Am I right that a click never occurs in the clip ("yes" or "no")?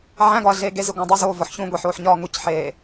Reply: yes